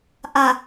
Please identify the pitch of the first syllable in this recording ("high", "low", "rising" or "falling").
low